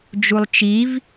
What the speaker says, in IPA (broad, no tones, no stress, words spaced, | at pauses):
d͡ʒulˠt͡ʃiv